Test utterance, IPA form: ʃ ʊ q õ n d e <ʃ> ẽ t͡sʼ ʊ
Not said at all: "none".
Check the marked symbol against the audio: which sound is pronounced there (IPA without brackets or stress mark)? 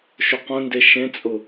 ʃ